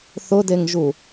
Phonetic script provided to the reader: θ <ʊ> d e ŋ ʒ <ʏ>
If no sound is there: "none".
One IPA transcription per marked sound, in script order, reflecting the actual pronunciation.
ʊ, u

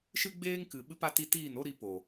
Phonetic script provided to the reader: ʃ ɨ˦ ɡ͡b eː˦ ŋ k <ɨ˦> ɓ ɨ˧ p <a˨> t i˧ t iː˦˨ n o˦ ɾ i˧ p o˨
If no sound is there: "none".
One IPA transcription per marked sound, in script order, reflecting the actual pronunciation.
ɨ˨, a˧

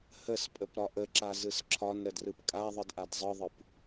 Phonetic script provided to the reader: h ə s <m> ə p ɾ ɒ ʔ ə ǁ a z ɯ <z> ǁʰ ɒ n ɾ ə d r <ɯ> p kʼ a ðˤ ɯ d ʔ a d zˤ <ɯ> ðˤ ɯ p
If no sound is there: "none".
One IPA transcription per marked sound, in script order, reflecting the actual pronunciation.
pʼ, s, ɯ, ɯ

